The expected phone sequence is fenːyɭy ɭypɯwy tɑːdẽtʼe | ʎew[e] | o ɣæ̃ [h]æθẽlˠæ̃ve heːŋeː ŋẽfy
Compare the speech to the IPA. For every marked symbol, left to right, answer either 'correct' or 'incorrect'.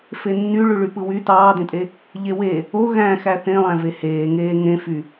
correct, incorrect

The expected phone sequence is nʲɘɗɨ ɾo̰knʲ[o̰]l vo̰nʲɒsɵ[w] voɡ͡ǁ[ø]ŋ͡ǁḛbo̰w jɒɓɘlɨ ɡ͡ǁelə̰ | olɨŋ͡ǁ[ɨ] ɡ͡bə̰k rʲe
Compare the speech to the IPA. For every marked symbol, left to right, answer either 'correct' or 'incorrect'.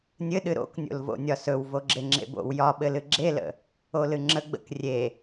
correct, correct, incorrect, incorrect

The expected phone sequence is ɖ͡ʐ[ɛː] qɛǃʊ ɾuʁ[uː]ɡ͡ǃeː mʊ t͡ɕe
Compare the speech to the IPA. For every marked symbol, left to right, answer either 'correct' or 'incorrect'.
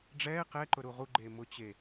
correct, incorrect

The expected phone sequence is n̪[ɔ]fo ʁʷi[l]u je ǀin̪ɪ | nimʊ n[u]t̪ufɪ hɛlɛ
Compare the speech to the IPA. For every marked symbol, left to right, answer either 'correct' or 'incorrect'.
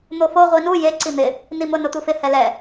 incorrect, incorrect, incorrect

